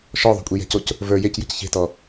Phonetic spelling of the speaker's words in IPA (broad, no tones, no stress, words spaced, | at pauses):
ʃɔðˤo̤kʷʼi jɛ̤coc | və˞ jecjə̤c çe̤tɔ